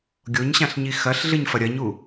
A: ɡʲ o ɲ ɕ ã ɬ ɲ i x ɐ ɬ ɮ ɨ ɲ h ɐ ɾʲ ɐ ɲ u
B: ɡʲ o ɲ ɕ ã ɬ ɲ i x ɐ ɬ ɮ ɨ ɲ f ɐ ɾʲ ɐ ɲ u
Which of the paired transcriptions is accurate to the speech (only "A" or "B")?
B